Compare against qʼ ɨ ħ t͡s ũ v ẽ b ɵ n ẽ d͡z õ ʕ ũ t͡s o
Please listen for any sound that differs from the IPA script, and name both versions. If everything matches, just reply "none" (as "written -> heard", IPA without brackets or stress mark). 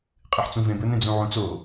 õ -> ũ